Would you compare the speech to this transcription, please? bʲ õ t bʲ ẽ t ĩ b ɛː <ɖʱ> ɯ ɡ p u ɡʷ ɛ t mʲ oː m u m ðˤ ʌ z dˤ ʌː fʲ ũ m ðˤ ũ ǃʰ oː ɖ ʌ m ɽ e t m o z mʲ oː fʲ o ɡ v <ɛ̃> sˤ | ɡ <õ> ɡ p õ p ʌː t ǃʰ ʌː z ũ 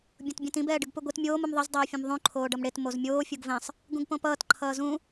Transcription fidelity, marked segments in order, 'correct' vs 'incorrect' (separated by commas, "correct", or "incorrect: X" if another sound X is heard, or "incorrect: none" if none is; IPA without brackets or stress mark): incorrect: ɖ, correct, incorrect: ũ